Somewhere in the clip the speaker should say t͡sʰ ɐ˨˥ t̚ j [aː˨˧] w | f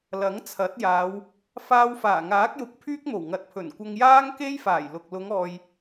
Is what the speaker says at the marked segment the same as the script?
yes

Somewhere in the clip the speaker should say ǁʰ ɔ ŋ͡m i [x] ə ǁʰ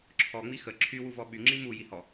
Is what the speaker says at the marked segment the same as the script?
yes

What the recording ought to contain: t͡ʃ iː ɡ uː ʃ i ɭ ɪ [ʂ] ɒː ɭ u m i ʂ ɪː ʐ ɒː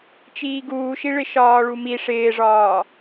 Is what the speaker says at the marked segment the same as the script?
no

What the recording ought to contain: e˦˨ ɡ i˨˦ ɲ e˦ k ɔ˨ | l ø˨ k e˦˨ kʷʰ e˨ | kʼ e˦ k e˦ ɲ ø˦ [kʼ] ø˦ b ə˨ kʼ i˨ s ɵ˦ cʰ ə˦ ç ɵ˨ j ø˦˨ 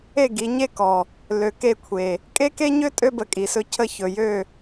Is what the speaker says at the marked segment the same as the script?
no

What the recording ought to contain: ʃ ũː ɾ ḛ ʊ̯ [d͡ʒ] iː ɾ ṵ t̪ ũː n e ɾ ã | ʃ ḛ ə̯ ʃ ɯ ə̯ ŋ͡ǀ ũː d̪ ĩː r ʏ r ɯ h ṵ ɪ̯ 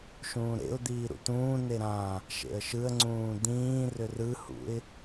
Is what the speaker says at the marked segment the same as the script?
no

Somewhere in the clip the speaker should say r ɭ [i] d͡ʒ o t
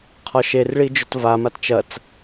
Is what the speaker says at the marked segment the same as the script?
yes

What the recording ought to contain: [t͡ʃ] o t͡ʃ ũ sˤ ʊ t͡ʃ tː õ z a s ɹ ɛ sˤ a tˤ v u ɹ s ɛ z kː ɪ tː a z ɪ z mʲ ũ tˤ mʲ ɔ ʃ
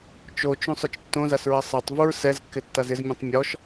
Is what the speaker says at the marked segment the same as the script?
yes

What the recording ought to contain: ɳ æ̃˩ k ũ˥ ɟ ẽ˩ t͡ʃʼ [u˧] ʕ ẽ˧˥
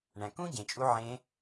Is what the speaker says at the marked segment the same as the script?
yes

